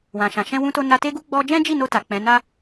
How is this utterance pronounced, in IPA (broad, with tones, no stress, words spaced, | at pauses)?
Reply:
wã˨ʃã˨ ʃɛ̃˧wũ˧to˧ na˧te˦ɡu˦ ɡ͡bɔ˧d͡ʒɛ̃˦ d͡ʒi˦˨no˧ ta˨k͡pɛ̃˨˦ na˦